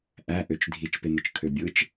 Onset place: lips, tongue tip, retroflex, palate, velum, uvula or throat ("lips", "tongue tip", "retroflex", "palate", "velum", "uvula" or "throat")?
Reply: throat